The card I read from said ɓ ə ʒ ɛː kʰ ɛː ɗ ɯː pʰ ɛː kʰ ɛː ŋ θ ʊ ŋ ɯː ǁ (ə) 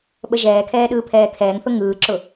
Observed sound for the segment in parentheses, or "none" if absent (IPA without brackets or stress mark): ʊ